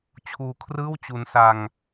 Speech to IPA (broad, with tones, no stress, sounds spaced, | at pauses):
t͡ɕʰ uː˧ kʰ r ɯː˥˩ w t͡ɕ u˧ n s a˧ ŋ